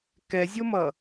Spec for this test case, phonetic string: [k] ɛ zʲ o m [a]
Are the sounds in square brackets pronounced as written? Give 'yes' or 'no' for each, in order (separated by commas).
yes, no